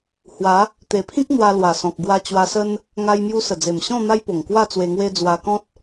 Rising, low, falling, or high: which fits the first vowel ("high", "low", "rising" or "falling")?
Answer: rising